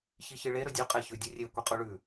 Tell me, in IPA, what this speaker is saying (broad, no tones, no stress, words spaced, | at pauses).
çiçɨɭe ɾɵdʲʉ qʼeçʉdʲɵrʲe kʷiqʼuɭʉ